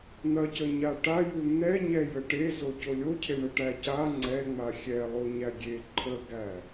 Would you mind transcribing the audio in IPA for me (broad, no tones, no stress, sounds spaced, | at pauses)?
n̪ ɐ c ə ɲ a ʈ a j u n̪ ɛ ɲ ɛ j ə ʈ e z o c o lʲ o cʰ e ɳ ə ʈ æ c a ŋ͡ǀ ɛ ŋ͡m a xʲ ɛ lˠ o ɲ æ ɡʲ e ǃʰ ə ɡ æ